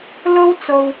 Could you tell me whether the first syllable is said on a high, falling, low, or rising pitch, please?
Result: high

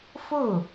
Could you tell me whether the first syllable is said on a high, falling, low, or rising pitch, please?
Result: falling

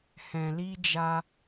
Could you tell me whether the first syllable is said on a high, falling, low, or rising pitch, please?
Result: low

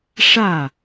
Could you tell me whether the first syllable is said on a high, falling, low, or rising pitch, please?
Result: falling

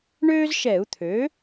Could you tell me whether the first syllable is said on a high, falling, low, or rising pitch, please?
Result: high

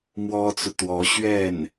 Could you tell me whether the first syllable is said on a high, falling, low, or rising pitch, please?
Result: high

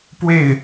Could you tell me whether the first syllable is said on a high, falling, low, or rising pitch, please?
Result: falling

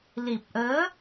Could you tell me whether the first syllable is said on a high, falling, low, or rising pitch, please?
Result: low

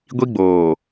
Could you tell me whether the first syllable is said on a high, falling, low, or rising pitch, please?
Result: high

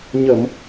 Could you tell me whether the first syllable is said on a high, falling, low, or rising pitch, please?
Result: low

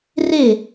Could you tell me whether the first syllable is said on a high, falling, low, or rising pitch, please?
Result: falling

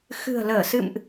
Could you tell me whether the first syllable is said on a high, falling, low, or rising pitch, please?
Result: low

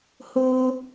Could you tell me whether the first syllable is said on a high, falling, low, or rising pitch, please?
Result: high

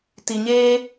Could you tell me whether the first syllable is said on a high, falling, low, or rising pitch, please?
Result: low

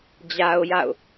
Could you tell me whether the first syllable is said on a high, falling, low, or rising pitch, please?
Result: high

